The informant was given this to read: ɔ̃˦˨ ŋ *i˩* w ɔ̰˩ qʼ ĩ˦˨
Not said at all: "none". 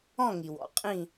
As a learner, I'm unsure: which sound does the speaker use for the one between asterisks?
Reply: i˩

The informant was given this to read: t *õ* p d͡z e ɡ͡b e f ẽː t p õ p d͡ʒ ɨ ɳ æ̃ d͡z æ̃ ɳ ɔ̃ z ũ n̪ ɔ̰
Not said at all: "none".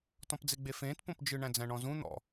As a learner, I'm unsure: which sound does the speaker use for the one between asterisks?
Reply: ɔ̃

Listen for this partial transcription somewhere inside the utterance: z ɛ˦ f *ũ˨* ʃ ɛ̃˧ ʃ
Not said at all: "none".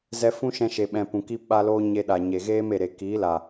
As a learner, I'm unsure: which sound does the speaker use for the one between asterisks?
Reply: ũ˦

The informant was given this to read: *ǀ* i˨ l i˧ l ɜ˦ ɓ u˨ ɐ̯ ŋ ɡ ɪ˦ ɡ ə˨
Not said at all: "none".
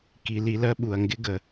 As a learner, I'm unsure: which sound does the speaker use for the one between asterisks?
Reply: k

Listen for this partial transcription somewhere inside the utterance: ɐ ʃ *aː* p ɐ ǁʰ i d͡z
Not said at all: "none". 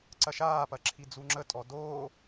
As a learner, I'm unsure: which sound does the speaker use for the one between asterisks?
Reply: aː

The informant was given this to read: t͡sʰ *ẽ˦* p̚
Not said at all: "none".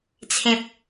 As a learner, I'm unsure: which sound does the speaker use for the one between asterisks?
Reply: ẽ˨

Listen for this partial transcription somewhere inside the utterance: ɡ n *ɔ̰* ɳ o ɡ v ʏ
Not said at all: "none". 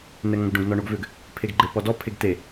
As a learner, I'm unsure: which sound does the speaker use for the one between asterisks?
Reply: ɔ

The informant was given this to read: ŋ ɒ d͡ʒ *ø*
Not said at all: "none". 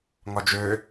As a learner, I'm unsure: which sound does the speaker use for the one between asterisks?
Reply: ø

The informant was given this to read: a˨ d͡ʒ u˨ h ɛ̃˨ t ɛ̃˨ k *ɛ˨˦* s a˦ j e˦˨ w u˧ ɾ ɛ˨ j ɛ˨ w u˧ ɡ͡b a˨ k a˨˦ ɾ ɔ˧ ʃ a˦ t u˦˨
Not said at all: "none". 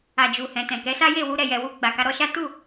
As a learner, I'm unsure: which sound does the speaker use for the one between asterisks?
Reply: ɛ˨˦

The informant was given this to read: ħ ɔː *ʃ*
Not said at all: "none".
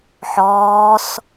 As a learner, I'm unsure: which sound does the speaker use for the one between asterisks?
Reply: s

